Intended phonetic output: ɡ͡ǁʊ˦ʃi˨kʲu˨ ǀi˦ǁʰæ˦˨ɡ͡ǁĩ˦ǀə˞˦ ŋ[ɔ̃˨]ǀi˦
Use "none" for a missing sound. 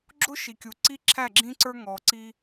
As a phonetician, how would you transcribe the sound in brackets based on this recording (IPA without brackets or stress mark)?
ɔ˨